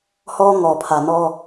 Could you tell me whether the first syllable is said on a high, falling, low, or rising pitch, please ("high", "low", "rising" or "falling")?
high